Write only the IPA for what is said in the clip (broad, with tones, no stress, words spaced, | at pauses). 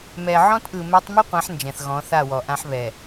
mɛ˨ʕɔ̃˦tʔɯ˨ mɛ˦tˤ mɯ˦qʷã˨˦ħ nd͡ʒɛ̃˨θɣɔ̃˨˦θa˦˨wɔ˨ ʔã˦ħβɛ˨